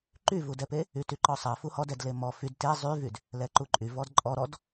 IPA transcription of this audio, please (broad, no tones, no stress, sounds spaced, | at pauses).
ǃ y v u d ɛ p e | y t y ǃ ɔ sˤ ɛ f u h ɔ d ɛ d l e m ɔ f y d t e zˤ y v y d | l ɛ ǃ u ǃʼ y v ɔ d ǃʼ ɔ ɾ ɔ d